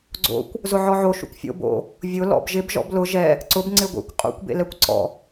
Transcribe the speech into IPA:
ɡ͡ǀo̰kʷ | zʊʕɔʕo ʃṵkʷfʲo̰ bo̰ | vʲʊ lɔ̰bʒɪb ʒɔ̰blʊ ʒɛ | ǀʊb ŋ͡ǀɪɡʷḛkʷ qʼṵkʷ bḛlɛkʷǀɔ̰

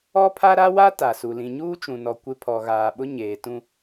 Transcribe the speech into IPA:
ɔ˦pʰa˦ ɾa˦wa˦ ta˨su˨ lĩ˨ɲuː˦t͡ʃũ˨nɔ˨ kʷɪ˦ pʰɔ˨ɣaː˨ɓʊ˦ ɲeː˨tũ˦

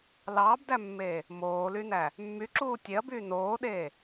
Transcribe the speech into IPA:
lɑːbdæmːeː | moːlynæ | mːyǁuː tʲeɐ̯byː noːɗeː

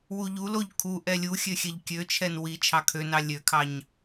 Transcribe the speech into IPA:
wuʎuloʎ kʰu ʔɛlʲuxʲø xʲɛʎkʲøt͡ʃʰɛn wi t͡ʃʰɑkʰønɑ lʲøkʰɑɲ

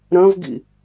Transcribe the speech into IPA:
ɾɐ̃vɡḭ

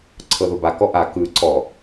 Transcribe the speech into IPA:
ǀʰɤðoba kɔʔa kɯ ǀɔ

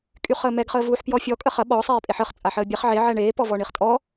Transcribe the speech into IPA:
kʼyχəːmɛɡ χəːvuːħpjɔfʲɔ kʼəχɐ ɓɔ sˤeːpʼeħəχ t͡sʼaħəːbʲɛχ ʕe ʕɛɳeː pɔvɔɳiχtʼɔ

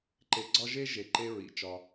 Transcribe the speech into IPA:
ǃe˧ɡ͡ǀɒ˦ʒe˦ ʒe˨ǃe˧ ɹḭ˨˦t͡ʃɒ˧

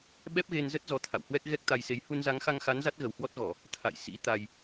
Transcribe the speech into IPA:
ɓɛ˦˥p̚ɣe˧nzə˦˥t̚ zɔ˧t̪ʰa̰˧˨whwɛ˦˥k̚ ɣɛ˦˥k̚t̪a˧jse˨˦j hu˧nza˨˦ŋxa˧ŋxa˨˦n za˦˥t̚ɣə˨˩whwɔ˦˥t̚ɣɔ˧˩˨ | t̪ʰa̰˧˨j sḭ˧˥t̪a˧j

